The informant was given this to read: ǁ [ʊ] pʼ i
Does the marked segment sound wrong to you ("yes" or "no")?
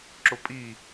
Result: no